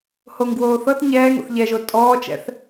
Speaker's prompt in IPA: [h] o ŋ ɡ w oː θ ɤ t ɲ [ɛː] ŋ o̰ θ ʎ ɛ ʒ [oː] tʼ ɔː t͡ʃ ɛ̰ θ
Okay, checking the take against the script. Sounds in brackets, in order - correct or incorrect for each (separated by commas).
correct, correct, incorrect